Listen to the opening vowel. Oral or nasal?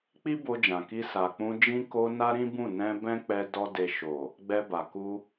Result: oral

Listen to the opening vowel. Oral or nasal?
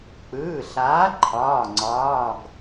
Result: oral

